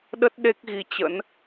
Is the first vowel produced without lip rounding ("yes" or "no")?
yes